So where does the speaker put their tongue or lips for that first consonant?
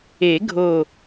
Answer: velum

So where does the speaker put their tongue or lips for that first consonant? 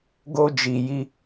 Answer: velum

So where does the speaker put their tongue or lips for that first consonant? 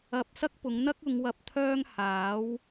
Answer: lips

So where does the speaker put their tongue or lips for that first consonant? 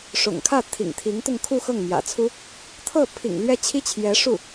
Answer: retroflex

